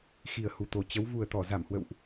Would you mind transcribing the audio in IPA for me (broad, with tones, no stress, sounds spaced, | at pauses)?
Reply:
x i˨˩ ə̯ h u˨˩ t̪ o˨˩ t͡ɕ ə˨˦ w v u˨˩ ə̯ t̪ ɔ˧˩ z a˧˩ m h w ə̰˧˨ w ʔ